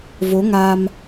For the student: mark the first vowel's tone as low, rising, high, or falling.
rising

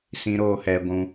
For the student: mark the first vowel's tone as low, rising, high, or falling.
high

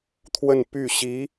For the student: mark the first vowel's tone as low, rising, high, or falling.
falling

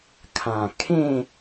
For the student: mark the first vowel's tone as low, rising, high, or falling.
low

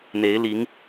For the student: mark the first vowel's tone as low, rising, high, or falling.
rising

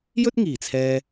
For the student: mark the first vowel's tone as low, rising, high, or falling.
high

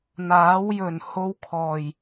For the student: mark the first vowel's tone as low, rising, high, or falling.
rising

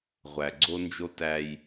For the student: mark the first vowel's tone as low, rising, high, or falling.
low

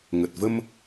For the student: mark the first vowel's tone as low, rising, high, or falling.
low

